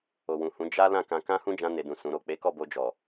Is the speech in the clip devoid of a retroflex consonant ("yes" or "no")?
yes